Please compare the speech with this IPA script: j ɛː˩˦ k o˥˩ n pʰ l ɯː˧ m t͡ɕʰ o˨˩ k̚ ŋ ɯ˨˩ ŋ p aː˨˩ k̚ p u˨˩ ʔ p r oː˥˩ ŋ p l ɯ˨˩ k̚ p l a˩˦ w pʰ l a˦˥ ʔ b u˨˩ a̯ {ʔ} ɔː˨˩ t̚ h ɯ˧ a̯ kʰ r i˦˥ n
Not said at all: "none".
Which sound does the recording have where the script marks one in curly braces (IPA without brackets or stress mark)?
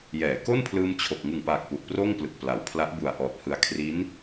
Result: ʔ